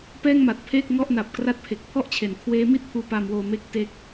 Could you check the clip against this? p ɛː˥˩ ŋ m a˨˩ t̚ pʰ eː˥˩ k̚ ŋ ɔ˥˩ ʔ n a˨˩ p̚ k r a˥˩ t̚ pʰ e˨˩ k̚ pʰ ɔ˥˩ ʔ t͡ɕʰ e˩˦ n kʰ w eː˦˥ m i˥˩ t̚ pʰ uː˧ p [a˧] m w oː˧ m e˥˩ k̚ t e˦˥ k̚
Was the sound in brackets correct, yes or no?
yes